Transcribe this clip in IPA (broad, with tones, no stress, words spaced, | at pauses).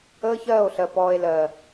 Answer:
əː˦çɜː˦˨o̯ɬɜ˨ pɔː˨e̯lɜ˨